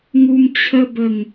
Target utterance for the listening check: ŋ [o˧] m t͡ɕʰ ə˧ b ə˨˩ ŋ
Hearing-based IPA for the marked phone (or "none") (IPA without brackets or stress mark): u˧